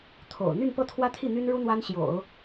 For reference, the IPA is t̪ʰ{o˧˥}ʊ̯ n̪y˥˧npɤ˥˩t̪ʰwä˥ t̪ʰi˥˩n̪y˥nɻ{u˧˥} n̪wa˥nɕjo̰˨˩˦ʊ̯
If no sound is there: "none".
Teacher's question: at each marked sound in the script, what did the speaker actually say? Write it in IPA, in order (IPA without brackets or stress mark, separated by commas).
o̰˨˩, u˥